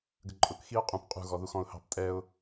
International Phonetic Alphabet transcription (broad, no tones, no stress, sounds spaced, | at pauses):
ɡ ə ǃʼ ʊ k x i ʊ̯ qʼ ũ p qʼ ṳ ɣ ɔ ð u x ɔ̃ ʊ̯ h ɑ̤ p tʼ ɛ ʊ̯